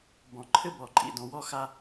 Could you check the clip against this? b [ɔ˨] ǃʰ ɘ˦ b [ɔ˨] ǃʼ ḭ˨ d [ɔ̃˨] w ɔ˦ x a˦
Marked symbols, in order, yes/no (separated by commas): no, yes, yes